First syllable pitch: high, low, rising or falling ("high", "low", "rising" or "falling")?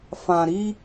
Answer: low